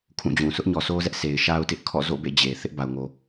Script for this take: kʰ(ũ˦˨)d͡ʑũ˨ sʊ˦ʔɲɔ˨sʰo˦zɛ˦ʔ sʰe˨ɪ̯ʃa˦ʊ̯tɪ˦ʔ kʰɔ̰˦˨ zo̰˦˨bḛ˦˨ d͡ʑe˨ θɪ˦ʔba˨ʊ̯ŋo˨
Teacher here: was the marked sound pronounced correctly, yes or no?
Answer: yes